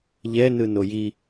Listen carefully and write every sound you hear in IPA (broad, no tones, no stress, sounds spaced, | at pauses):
ʎ ɛ n ɯ n o j i